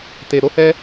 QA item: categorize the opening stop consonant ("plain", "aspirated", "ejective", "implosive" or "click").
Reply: plain